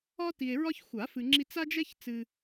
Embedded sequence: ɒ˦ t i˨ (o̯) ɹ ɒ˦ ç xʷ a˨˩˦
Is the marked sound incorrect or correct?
incorrect